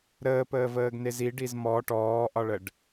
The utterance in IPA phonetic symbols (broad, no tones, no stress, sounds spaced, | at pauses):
ɾ əː p əː v əː ɡ n e z i ɖ i z m ɔ ʈ ɔː ʔ ɒ ɭ ə ɖ